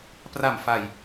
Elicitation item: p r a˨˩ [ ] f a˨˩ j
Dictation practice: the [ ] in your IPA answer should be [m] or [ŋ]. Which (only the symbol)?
m